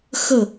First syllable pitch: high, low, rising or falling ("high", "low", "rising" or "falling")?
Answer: falling